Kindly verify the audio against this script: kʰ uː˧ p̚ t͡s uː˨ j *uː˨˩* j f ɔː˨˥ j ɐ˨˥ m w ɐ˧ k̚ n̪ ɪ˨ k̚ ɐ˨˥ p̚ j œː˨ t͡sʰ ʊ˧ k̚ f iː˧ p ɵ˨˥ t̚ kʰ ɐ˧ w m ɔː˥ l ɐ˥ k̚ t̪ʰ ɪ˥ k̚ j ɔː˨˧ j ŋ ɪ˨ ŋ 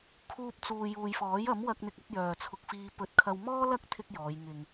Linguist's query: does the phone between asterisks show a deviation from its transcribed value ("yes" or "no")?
yes